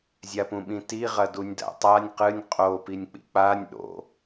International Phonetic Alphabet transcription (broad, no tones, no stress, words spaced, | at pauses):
zʲapũɓĩti ʁɐdunʲda̰tˤanʲ qɨnʲ qʼopinʲk͡pḭ k͡panʲ ɗo̰